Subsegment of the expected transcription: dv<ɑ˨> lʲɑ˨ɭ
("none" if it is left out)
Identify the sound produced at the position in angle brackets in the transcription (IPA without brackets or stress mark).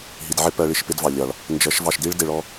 ɑ˨